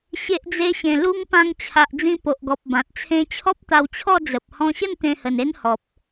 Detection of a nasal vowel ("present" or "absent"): present